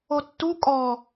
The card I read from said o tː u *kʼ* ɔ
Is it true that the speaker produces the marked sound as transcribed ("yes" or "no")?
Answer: yes